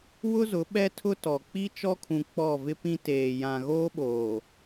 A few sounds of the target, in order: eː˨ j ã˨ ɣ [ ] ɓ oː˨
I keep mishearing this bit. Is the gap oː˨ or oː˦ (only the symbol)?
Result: oː˦